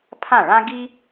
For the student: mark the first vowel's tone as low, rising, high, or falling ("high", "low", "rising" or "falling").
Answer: falling